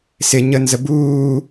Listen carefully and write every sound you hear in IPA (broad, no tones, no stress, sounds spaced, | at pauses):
s ɪ ɲ ə n z ə b uː